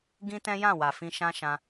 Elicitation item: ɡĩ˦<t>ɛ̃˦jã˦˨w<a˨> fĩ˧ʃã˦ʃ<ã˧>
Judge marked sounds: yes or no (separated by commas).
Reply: yes, yes, yes